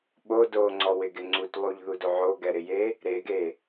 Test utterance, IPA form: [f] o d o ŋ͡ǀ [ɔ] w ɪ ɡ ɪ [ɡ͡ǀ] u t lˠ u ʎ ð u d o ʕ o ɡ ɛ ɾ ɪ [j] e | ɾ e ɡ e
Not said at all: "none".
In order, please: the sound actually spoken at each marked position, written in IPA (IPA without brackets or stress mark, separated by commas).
ɓ, ɔ, ŋ͡ǀ, j